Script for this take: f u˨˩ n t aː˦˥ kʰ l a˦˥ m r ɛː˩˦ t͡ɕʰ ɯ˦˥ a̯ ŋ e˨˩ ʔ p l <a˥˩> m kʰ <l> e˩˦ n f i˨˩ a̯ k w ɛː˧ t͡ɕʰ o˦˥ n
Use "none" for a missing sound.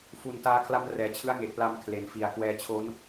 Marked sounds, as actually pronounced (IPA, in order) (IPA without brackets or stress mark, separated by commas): a˧, l